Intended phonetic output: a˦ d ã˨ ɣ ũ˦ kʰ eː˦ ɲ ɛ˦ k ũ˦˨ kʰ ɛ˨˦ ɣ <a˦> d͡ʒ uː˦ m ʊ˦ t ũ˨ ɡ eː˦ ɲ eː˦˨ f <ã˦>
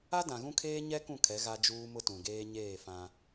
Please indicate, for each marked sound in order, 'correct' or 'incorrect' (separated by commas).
correct, correct